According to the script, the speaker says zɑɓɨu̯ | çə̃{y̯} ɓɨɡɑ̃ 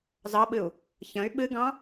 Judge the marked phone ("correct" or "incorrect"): correct